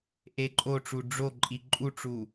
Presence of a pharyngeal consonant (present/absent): absent